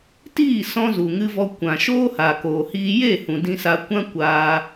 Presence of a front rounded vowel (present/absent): absent